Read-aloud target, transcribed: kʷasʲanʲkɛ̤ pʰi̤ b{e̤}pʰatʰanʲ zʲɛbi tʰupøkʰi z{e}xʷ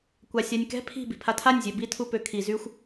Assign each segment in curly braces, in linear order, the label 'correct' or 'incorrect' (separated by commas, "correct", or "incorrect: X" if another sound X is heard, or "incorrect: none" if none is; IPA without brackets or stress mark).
incorrect: i̤, incorrect: y